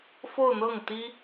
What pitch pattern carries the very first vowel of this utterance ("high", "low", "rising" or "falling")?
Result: falling